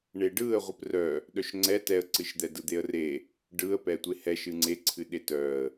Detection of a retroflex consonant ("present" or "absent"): present